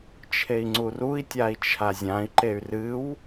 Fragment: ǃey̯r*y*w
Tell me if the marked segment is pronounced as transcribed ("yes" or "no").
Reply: no